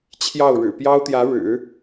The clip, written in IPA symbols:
t͡ɕʰ j ɑ˥˩ ʊ̯ ɻ ɻ̩˨˩ p j ɑ˥ ʊ̯ t̪ j ä˧˥ ɻ ɻ̩˨˩˦

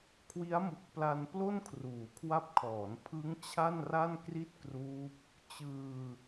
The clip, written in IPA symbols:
kʰ w i˦˥ a̯ m u˨˩ k̚ p l a˧ n p l o˥˩ n kʰ r uː˩˦ kʰ w a˦˥ p̚ kʰ ɔː˩˦ n pʰ ɯ˦˥ ŋ t͡ɕʰ a˥˩ n r a˥˩ n k r i˥˩ t̚ k r uː˦˥ p̚ | t͡ɕ ɯː˧

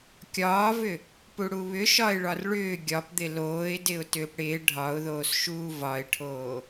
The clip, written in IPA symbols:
kʲ ɒː v ʏ | p u ɽ u β ʏ ʃ ɒ ɪ̯ ɭ ɒ r ɭ ʏː ɡʲ ɒ p d̪ ɪ l oː ɪ̯ d ɪ ʊ̯ t ʏː p ɽ ɪː ɖʱ ɒ ʊ̯ ð oː s ʃ uː v ɒ ɪ̯ ʈʰ oː

